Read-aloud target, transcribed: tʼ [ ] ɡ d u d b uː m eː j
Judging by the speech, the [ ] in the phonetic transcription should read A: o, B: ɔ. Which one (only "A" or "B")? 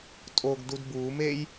A